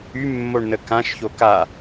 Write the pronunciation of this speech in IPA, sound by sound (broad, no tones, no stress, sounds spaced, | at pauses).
y mː o ɳ n ə k ã ʃ ç o k a